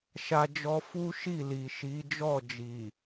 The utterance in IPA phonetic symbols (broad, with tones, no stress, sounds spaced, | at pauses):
ʃ a˦ d͡ʒ ɔ˦ f u˦ ʃ i˦˨ l i˨ ʃ i˨˦ d͡ʒ ɔ˦˨ d͡ʒ i˨